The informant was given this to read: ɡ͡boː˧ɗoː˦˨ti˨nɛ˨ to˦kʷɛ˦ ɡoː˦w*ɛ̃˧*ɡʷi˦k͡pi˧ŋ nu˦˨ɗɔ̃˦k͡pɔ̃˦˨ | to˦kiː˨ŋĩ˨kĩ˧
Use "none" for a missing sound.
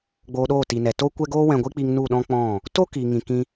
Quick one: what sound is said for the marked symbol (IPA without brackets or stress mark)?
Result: ɛ̃˧